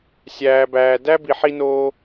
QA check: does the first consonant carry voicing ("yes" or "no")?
no